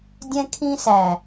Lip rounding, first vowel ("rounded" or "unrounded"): unrounded